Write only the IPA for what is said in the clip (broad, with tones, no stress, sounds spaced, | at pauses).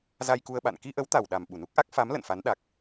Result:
z a˧ j k u˧ ə̯ ɓ a̰˧˨ n k i˧ ʔ ə˨˦ w t̪ a˨˩ w ɗ a˨˩ m ɓ u˧˩ n u˦˥ k̚ ʔ a˦˥ k̚ f a˨˦ m l ə̰˧˨ n f a˨˦ n ɗ a˨˩ k̚